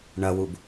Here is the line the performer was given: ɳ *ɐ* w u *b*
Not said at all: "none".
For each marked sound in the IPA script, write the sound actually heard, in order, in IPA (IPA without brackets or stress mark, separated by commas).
ɐ, b